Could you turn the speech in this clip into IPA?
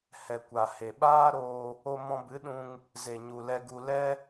h ɛ˨ kʷ a˨ h e˨ ɓ aː˦ ɾ oː˧ | o˧ m ɔ̃˧ b ɨ˨˦ ɗ ũ˧ ŋ | z e˨ ɲ u˨ l ɛ˧ ɡ u˧ l ɛ˦

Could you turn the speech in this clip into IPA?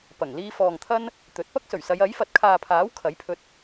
p ɐ˨˩ ŋ l iː˧ f ɔː˨ ŋ t̪ʰ ɐ˥ n | t̪ ɵ˨˥ t̚ p ɐ˥ k̚ s ɵ˨˩ ɥ s ɐ˨˧ j ɐ˨˥ j f ɐ˨ t̚ kʰ aː˨ pʰ aː˨˥ w kʰ ɐ˨˥ j pʰ ɵ˧ t̚

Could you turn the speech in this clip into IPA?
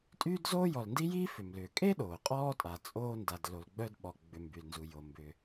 tʼ yː˥ d z oː˥ j ɔ˨ l n d i˥ j iː˦ f ʏ˩ m l ʏː˩ kʼ e˥ ɗ oː˩ qʼ ɔː˥ tʼ a˩ t͡sʼ oː˦ n d a˨ d l o˨ l ɡ͡b œ˦ d ɓ ɔ˨ ɡ͡b ʏ˨ m b y˩ l n z u˩ j o˩ m b ʏ˨

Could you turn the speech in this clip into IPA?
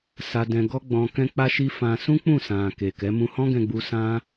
s a˧ d ɛ̃˧ ɡ ɔ˦ ɡ͡b ɔ̃˧ k ɛ̃˦ k͡p a˦ ʃ i˦ f ã˧ s ũ˦ k͡p ũ˦˨ s ã˨ k e˨ k ɛ˨˦ m ũ˧ h ɔ̃˦ ɡ ɛ̃˧ ɡ͡b u˧ s ã˦

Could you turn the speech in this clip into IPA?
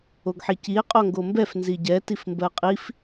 o ɡ ħ i c i e̯ qʼ o ŋ ɡ o m b ɛ f n z i ɟ ɛ t i f m b ɜ qʼ i f

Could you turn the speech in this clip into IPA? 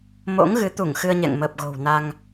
m o̰˧˥ ŋ ɣ ɨ˨˦ t̪ u˧˩ ŋ x ɨ˧ ə̯ ɲ ɛ̰˧˨ ŋ m əː˨˩ p̚ ɣ o̤˨˩ w n a˧ ŋ

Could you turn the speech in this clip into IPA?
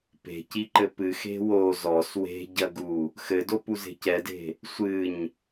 p e̤ c i ǃ ɘ p ɨ x e̤ w o z ɔ s w e̤ ɟ ɐ ɡ u | x ɘ d o p u z e̤ c ɛ d e̤ | sʷ ɨ ɲ

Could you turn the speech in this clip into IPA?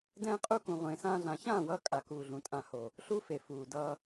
d ɛ̃ː˦ qʼ u˦ k ũ˧ ʁʷ ẽː˧ s ãː˦ ɮ ã˧ ç ãː˦˨ w ʌː˧ kʼ a˨ k uː˨ ɮ ũ˨ tʼ ã˨ h o˨ | ɬ u˦ f e˨ f uː˨ d ʌː˧

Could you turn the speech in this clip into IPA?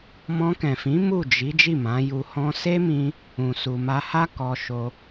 m ɔ̃˧ k ɛ̃˨ f ĩ˨˦ m u˦˨ d͡ʒ i˨˦ d͡ʒ i˦˨ m ã˨˦ j u˧ h ɔ̃˧ s e˦ m ĩ˧ | ũ˨ s u˨ m a˧ h a˦ k ɔ˧ ʃ o˧

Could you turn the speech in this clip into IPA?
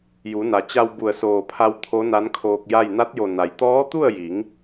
j u˩˧ n a˩ t͡ɕ a˧ w b u˧˩ ə̯ s oː˧˩ pʰ a˧ w t̪ʰ o˧˥ n a˧˥ n kʰ oː˧ k̚ j a˥˨ j n a˧˥ t̚ j o˧˩ n a˩ j t̪ ɔː˧˥ t̪ u˥˨ ə̯ j i˩˧ ŋ

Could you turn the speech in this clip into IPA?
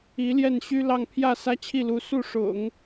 i˧˥ l j ɛ˥˩ n ɕ y˥ l ɑ˥˧ ŋ pʰ j ä˥˩ s ä˥ t͡ɕʰ i˥˩ l u˧˥ s u˥˩ ʂ ʊ̰˨˩˦ ŋ

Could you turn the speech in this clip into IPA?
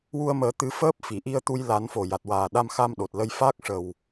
w u˧ ə̯ m əː˨˩˦ t̪ ɨ˧˥ f əː˦˥ p̚ f i˨˩˨ ʔ i˧ ə̯ t̪ u˧ j l a˨˩˦ n f o˨˩ j a˨˩ t̚ w aː˨˩ ɗ a˧ m x a˧ m ɗ o˨˩ t̚ l ə˧ j f aː˦˥ k̚ ʂ ə˨˩ w

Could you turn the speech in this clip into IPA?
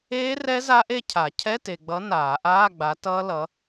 eː˦˥ r ɛ˦˥ z a˦˥ ʔ e˥˧ cʰ a˨˩˦ cʰ ɛ˧˥˧ t e˨ ɡ͡b ʌ˨˥ n aː˨˩˦ ʔ aː˧˥˧ ɡ͡b a˨˥ t ʌː˦˥ l ʌ˨˥

